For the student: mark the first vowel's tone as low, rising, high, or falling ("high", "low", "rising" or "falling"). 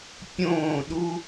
falling